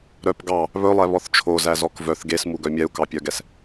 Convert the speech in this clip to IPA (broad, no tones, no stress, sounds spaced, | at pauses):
ɾ œ p ɡ ɑ | β ɵ lˠ ɛ β ɔ θ t͡ʃʰ o z æ z ɔ k v œ θ ɡ e s m u ɡ œ mʲ ɛ u̯ k ɑ pʲ œ ɡ ɛ s